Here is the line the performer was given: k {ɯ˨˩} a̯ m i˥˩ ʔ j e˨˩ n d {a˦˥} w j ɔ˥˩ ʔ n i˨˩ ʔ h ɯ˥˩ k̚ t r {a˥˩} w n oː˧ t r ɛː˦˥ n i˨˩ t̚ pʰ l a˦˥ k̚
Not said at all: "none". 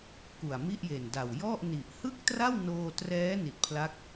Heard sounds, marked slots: u˨˩, a˨˩, a˥˩

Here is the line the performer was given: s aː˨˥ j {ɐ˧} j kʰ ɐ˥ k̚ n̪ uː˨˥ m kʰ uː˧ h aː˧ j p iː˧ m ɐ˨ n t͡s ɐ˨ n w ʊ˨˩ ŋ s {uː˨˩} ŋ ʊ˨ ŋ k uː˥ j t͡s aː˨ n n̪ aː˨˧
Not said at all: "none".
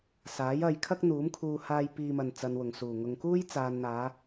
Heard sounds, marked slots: ɐ˧, uː˨˩

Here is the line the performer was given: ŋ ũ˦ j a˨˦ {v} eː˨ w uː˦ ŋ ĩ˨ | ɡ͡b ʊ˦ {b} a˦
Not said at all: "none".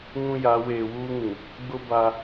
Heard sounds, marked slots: w, b

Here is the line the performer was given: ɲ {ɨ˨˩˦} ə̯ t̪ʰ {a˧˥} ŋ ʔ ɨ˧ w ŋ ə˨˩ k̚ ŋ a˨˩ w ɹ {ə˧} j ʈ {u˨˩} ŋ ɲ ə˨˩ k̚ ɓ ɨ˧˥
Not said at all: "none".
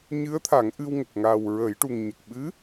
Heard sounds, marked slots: ɨ˧˥, a˨˩˦, ə˨˩˦, u˨˩

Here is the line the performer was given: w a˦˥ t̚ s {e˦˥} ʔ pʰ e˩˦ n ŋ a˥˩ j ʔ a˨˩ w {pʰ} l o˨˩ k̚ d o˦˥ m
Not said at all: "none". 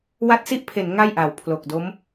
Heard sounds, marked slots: i˦˥, pʰ

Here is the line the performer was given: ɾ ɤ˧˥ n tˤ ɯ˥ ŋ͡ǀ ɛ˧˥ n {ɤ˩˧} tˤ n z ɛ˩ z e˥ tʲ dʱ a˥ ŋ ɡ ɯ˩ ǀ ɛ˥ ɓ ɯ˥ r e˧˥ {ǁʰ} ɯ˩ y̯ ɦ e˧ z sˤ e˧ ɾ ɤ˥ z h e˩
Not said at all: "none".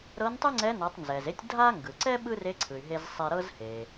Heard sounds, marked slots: ɤ˩˧, ǀʰ

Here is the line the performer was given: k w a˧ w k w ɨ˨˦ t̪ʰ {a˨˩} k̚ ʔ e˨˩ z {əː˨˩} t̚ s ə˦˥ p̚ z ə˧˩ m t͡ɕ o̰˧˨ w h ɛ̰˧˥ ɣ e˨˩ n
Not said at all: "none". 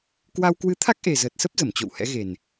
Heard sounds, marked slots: a˦˥, əː˨˩

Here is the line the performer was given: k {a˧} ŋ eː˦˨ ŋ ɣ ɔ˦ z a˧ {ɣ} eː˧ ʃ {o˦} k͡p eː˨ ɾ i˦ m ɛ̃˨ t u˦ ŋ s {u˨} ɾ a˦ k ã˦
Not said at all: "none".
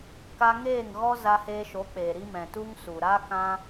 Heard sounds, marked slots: a˧, h, o˨˦, u˨

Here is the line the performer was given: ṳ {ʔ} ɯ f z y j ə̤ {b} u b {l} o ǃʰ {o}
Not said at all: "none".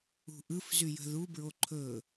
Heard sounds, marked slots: ʔ, ð, ɹ, ɵ

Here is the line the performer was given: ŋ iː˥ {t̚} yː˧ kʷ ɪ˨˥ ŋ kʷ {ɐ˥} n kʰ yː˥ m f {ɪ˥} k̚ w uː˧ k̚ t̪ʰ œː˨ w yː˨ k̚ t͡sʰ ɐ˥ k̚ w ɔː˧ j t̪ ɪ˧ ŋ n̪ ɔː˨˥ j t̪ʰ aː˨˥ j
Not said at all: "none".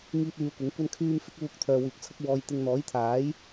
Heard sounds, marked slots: t̚, ɐ˥, ɪ˥

